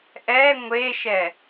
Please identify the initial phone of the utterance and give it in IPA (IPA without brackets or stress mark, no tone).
ʔ